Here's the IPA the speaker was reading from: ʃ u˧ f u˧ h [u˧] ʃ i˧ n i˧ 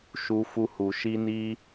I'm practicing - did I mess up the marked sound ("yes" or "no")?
yes